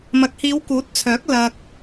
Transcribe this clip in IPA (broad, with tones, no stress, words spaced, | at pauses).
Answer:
mɐ˨˥k̚hiː˨˧wkuː˨˥t̚t͡sʰœː˨˥k̚ lɐ˧k̚